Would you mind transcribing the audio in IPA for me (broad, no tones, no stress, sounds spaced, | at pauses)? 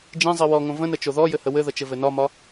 d͡ʒ ĩ zˤ i w ɔ ŋ õ v ə̃ n ə t͡ʃ o ð ɔ j ɘ h ə w ɘ ð ə t͡ʃ ɘ v ɘ n ɒ m ɒ